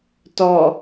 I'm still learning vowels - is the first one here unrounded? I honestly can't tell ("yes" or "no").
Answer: no